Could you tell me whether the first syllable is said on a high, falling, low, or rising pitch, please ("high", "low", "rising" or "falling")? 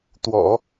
low